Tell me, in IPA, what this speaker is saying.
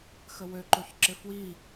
xəwø ǃoçǁɪfwi

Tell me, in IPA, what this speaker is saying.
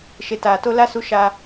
ʃe˨taː˨to˦ la˦ su˦ʃa˦

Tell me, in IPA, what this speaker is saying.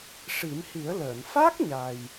ʂi˨˩˦mhi˨˩˦ə̯ləː˨˩˨n fa˦˥k̚ ɲa˨˩j

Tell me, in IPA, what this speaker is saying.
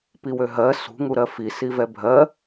piwøɦɜ sṳŋu ɾɜfisivɛ bʱɜ

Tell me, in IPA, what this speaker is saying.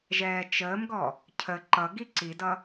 ʒɛːt͡ʃəːmɡɔ | cʰə ǃʌɡi ǀidʌ

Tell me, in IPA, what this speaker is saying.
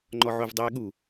ŋ͡ǃɔʕovdˤeːɠu

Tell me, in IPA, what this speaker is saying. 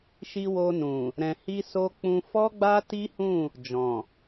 ʃi˧ wo˧nũ˨ | ɾɛ̃˨hi˧so˧k͡pũ˧ fɔ˦ɡ͡ba˦ti˦hũ˦˨ | d͡ʒɔ̃˨

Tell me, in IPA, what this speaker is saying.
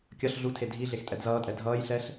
kʲʌɬ ɮutʰe dʱi ɮextʼɛdzʌːtʼɛ dʱʌːjɬɛɬ

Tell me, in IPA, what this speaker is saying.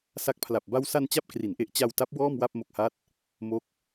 sa˦˥k̚pʰla˨˩p̚ ba˧wsa˧n t͡ɕa˥˩p̚kri˩˦nʔe˦˥ʔ t͡ɕa˧w ta˦˥p̚ wɔː˥˩mwa˥˩p̚ mo˨˩k̚ha˦˥t̚ | mo˦˥k̚

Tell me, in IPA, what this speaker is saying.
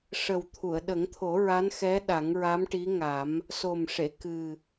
ʂə˨˩wt̪ʰu˨˩˨ə̯ɗə˨˩˦ŋt̪ʰo˨˩˦ ɹa˧˥nxɛ˧˥ ɗa˨˩˦ŋɹa˧˥mʈi˧˥ŋa˨˩˦m | so˨˩m ʂe˨˩˨ kɨ˨˩

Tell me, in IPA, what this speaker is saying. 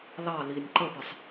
lɑ linʲ ǃəpəsˤ

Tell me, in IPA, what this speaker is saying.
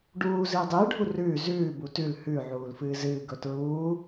ɖuː zɨːdˤɨːɖʱu rʉː zʉː butʉl hʉ ʕuːlfɨːzɨː ɡɵtɹuː

